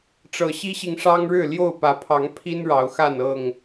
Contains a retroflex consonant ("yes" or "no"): yes